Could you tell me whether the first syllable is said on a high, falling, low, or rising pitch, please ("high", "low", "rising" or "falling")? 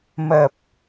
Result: low